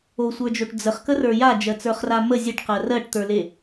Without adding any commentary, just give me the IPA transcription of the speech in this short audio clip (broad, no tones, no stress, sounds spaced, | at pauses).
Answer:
o sʷ ə˞ d͡ʒ o ʈ d͡z ə χ k ə r ə˞ j a d͡ʒ ɜ t͡s ə˞ χ r a m ə zʲ ə ʈ q ɜ r ɜ ʈ t̪ ə˞ l e